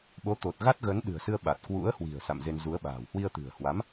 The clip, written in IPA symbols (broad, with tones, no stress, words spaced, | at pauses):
ɓo˨˦t̪o˨˩t̚ ɣa˦˥t̚ɣə˨˦nɗɨ̤˨˩ə̯sɨ˧ə̯ ɓa˨˩t̚ kwṵ˧˥ə̯hwi̤˨˩ə̯ sa̰˧˨mze˧nzu˨˦ə̯ɓa̤ː˨˩w hwi˧ə̯t̪ɨ̤˨˩ə̯hwa˨˦m